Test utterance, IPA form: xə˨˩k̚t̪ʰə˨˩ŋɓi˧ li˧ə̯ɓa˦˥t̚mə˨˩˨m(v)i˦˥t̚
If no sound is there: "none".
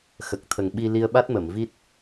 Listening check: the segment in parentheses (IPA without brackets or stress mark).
v